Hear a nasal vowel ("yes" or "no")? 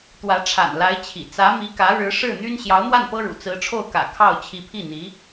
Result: no